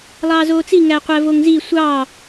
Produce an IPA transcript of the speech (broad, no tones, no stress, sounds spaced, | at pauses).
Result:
lˠ ɑː z oː t͡s i ŋ æ qʷ æ v o ŋ z i sʷ ɑ